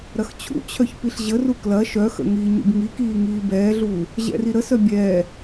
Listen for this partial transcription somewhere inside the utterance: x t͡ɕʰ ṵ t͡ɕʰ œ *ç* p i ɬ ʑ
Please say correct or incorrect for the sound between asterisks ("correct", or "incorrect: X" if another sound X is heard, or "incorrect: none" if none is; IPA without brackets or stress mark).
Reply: correct